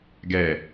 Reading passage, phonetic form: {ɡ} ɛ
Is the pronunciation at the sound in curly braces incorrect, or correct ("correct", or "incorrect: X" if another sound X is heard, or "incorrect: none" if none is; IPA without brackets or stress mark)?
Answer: correct